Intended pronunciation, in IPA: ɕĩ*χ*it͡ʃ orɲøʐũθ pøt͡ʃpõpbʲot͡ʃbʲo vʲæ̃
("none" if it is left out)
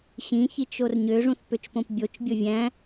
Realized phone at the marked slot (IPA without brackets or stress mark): ç